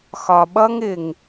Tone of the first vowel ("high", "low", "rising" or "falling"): low